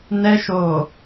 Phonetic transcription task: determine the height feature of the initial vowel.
mid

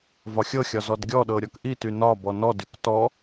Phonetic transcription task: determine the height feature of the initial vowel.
low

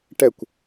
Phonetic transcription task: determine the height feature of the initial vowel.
mid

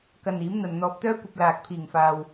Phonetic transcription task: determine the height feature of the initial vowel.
low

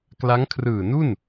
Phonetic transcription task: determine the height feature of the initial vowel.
low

